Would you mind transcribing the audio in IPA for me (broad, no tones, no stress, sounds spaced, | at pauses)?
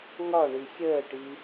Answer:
ŋ ɒ ɳ i xʲ əː ʈ i